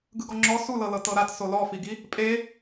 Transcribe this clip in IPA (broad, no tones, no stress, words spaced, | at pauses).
ɡɯɡɔŋ͡ǁɔ sulɤlɤ tɤɾat solɔfiɡi | pʼe